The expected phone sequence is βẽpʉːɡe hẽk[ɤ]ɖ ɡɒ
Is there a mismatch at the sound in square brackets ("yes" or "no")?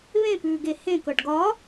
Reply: no